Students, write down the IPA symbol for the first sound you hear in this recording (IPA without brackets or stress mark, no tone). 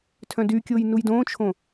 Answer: tʰ